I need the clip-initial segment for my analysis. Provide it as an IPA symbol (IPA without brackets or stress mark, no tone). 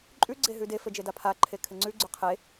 ǃʼ